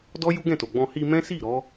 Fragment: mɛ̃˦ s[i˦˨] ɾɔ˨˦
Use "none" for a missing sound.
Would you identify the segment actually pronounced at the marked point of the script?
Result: i˦˨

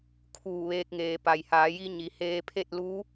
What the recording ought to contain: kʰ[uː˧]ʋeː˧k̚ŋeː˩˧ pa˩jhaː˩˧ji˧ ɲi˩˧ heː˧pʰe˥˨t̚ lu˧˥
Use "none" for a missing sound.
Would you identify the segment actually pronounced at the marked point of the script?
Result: uː˧˩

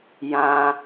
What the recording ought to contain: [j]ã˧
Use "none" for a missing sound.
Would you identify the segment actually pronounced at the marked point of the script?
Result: j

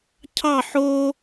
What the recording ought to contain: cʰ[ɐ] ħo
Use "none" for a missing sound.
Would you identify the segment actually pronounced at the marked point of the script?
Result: ɑ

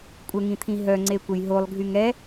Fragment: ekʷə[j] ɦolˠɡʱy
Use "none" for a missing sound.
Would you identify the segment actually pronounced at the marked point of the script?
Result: j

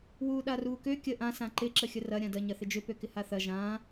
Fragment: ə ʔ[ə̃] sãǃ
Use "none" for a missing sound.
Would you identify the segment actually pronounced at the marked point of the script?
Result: ã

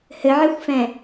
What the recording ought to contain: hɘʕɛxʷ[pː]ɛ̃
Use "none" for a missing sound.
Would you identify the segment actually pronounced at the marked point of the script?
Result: f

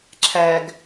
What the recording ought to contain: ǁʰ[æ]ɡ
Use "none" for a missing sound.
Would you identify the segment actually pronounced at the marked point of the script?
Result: æ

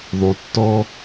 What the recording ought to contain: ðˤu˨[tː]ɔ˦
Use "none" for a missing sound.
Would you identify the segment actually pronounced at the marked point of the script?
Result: tː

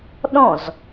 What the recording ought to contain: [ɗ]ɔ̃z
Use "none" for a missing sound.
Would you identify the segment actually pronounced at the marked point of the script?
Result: ɗ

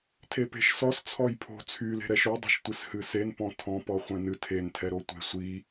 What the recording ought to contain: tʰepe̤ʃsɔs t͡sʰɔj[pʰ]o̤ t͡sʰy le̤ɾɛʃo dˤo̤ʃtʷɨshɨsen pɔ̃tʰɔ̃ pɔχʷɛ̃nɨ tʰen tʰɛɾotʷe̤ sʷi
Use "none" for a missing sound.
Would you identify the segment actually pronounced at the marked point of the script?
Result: pʰ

